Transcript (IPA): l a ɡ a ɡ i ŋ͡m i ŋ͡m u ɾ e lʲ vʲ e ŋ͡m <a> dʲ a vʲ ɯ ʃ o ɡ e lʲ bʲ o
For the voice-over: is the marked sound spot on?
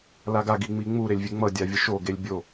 no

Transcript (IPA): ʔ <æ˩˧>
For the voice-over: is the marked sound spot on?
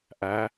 yes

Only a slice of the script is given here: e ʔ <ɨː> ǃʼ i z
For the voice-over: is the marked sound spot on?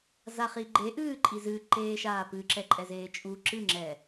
yes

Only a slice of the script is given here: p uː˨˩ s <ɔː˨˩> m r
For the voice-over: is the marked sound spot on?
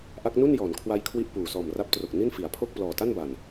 yes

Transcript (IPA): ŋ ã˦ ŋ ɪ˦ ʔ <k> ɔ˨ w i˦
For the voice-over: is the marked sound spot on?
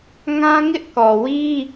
yes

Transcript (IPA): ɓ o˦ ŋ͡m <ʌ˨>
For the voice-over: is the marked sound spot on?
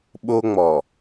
no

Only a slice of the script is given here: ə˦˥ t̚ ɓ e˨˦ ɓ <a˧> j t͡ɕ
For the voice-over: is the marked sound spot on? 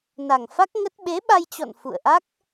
yes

